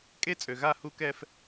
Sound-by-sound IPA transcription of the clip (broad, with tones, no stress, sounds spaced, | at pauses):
kʼ e˦ t͡sʼ ø˨ ɣ a˦˨ h u˦ k ɛ˦ f